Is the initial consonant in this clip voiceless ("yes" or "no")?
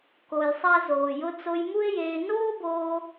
yes